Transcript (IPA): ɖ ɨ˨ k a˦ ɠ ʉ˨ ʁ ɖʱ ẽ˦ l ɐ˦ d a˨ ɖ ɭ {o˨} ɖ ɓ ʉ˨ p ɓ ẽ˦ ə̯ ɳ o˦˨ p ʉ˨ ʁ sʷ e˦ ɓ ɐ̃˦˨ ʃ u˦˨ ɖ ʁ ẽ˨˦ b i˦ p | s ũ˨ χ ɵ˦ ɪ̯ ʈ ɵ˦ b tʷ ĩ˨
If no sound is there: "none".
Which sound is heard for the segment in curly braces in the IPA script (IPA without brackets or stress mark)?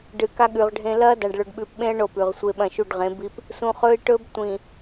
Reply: ɵ˨